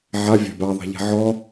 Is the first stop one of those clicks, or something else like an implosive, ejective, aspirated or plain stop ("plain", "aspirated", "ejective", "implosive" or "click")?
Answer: plain